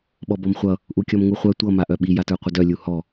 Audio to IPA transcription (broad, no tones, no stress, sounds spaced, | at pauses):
ɓ ɔ b ɔ m χʷ ʌ | ʔ u kʲ ɔ m ŋ u χʷ œ tʷ ʌ m a ʔ œ ɓ i j a t ə˞ qʷ ə d œ lʲ u h ɔ